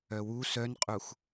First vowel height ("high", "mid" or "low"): mid